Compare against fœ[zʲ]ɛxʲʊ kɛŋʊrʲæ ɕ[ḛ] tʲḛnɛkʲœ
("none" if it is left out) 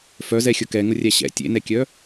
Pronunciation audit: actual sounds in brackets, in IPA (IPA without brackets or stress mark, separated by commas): z, ɛ̰